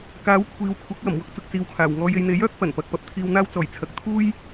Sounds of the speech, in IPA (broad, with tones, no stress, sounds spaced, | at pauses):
k aː˨˥ w kʷʰ iː˨ w kʷʰ ɐ˨˥ k̚ w ɐ˨˩ m w ʊ˧ k̚ t͡s ʊ˨ k̚ t͡s iː˨ w kʰ aː˨˩ w ŋ ɔː˧ j e˧ j n̪ e˨˥ j œː˨˥ k̚ f ɐ˨˩ n p ɐ˨ k̚ p ɐ˨˥ p̚ t̪ʰ iː˨ w n̪ aː˧ w t͡s ɔː˨˩ j t͡sʰ ɐ˨ k̚ t̪ʰ uː˥ j